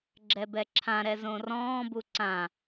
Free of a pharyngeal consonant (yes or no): yes